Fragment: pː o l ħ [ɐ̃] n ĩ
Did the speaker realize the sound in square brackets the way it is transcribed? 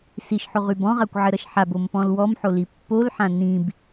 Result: no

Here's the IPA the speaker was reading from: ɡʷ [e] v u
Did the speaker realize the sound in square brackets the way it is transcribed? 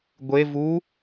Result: yes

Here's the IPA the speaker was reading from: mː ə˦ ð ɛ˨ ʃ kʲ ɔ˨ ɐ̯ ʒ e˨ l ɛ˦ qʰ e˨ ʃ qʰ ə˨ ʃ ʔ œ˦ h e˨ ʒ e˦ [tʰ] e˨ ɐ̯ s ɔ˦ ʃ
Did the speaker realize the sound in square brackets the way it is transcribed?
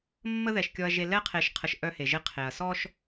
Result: no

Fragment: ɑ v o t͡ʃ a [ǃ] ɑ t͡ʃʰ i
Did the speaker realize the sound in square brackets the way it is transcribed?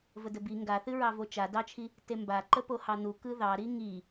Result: no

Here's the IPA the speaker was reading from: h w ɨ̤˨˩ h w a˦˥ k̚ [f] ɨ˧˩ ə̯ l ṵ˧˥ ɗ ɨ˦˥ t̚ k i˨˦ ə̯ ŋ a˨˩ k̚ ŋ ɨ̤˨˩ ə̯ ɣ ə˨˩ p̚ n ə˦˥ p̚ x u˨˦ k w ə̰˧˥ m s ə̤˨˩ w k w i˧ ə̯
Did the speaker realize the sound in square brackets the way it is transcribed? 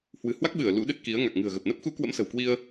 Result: no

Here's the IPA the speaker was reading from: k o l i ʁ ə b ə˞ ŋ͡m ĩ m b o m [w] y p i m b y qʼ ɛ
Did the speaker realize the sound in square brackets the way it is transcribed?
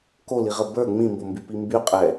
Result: no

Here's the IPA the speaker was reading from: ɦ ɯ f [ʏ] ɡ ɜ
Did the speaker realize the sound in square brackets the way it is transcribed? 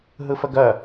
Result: no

